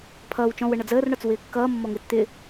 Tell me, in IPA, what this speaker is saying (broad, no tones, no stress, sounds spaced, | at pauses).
pʰ ʌː w t͡ʃ ɔ̃ w ə ɳ ʌ d͡z əː r ɳ ɒ t͡s w ɪː kː ʌː mː ɔ ŋ ɪː t͡s t̪ ɪ